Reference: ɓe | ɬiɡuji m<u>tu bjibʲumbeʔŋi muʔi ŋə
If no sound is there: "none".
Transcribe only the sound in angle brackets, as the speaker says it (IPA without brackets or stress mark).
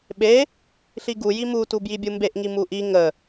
u